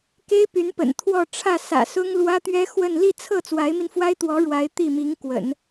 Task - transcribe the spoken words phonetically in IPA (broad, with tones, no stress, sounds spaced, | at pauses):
k e˥ ɪ̯ p y˧˥ n p ə̰˨˩ n t̪ʰ w ɔ˥˧ ʈ͡ʂʰ ä˥˩ s ä̰˨˩ s ʊ˥ ŋ l w ä˥ t̪ ɥ ɛ˥ x w ə˥˧ n l i˥˧ t͡sʰ ɤ˥˩ t͡s w a˧˥ ɪ̯ m i˧ n f w a˥ ɪ̯ t̪ w ɔ˧˥ ɻ w a˧˥ ɪ̯ t̪ i˥˩ m i˧˥ ŋ k w ə̰˨˩˦ n